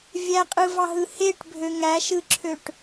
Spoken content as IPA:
vʲ æ qʼ ɯ v ɑ ɦ ɯ h e ʈ bʱ ø ŋ æ ʃ ɯ ǁʰ ø ʈ

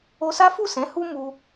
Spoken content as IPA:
o˧ s a˦ f u˦˨ s ɛ̃˨˦ h u˦ m u˧

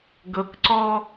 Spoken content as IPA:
ɡ ɤ k ǀ ɔ

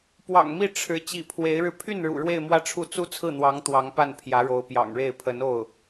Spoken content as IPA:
p w ɑ̰˨˩ ŋ m i˥˩ ʈ͡ʂʰ ɻ̩˧˥ t͡ɕ ḭ˨˩ pʰ w e˧˥ ɪ̯ ɻ ɻ̩˧ pʰ y˥˩ n ɻ ṵ˨˩ ɻ w e˥˧ ɪ̯ m w ä˥˧ ʈ͡ʂʰ u˥˩ t͡s u˥ t͡sʰ ɹ̩˥˩ n̪ w ɑ˧˥ ŋ t̪ w ɑ˧˥ ŋ p a˥˩ n pʰ j ä˧˥ ɻ o˧˥ ʊ̯ p j ɑ̰˨˩ ŋ ɻ e˥˩ ɪ̯ pʰ ə˧˥ n o˥˩ ʊ̯

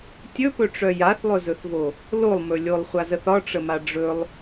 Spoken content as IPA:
tʲ ɵ p ɵ ʈ͡ʂ œ j a θ lˠ ɵ z ɵ θ v o | l o lˠ m ɵ lʲ o lˠ χʷ a z ə θ ɒ ʈ͡ʂ ə m a ɖ͡ʐ ɵ lˠ

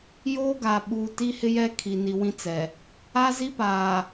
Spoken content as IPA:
j oː˦ ɡ a˨ ɓ uː˨ t i˦ h ɪ˦ j ɛ˦ kʰ i˨ n i˨ w ĩ˦ t͡s ɛ˨ | a˦ z i˦ p aː˨

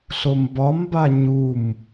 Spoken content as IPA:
ɬ o m b ɒ m b a ɲ u m

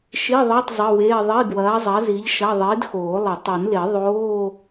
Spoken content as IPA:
ʃ i˧˥˧ ðˤ əː˧˥˧ tˤ zˤ ə˧˥˧ w eː˧˥˧ ðˤ i˧˥˧ ɡ w ɐː˨˥ zˤ ɐ˨˥ z i˨˥ ʎ ʃ ɐ˧˥˧ ðˤ iː˨˥ d x oː˨˩˦ lˠ ə˨˩˦ tˤ e˨˩˦ n l e˨˩˦ ðˤ oː˧˥˧

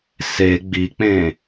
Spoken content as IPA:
s e ɡ͡b i k͡p ẽ

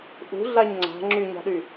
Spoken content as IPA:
ʔ ṳ ɮ a ɲ ŋ͡ǀ a̤ ŋ͡ǁ y ɲ a̤ ɗ y

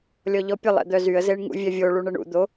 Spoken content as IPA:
lʲ ɔ ʎ ɔ pʲ ə lˠ ɛ̰ d̪ œ z y ə̯ z e ɳ ŋ ṵ vʲ ɛ vʲ o ɭ u ɳ ə ɳ ṵ d̪ o

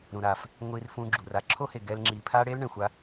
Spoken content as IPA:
ɾ ũ˧ ɾ aː˧ f | ŋʷ i˧ r f ũ˧ ɡ͡ǁ u˨ r a˦ ǁʰ o˦ h e˨ ɡ ɛ˧ l ŋ͡ǁ iː˨ pʰ aː˦ ɽ eː˦ l ɳ ɛ̃˨ xʷ a˧

